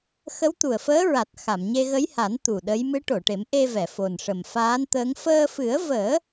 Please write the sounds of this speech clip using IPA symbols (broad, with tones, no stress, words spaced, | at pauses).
xə˧˥wt̪u˨˩ə̯fəː˧˥ɹa˨˩t̚ xa˨˩˨mɲe˧ɣə˧˥jha˨˩˦n t̪u˨˩ɗə˧˥j mɨ˧˥ʈo˨˩˨ʈe˨˩˦m ʔe˧vɛ˨˩˨ fo˨˩n ʂə˨˩mfaː˧˥nt̪əː˧˥ŋ fəː˧fɨ˨˩˦ə̯vəː˨˩˦